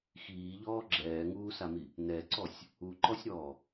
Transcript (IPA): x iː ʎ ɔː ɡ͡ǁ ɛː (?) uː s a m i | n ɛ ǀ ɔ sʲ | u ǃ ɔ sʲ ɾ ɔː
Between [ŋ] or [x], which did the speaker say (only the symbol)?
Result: ŋ